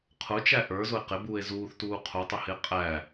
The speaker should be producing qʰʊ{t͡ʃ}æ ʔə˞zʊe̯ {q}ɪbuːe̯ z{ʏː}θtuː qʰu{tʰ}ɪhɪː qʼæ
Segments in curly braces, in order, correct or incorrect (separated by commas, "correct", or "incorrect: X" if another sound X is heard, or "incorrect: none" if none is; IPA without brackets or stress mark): correct, correct, incorrect: uː, incorrect: tˤ